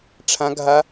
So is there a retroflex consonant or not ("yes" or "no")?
yes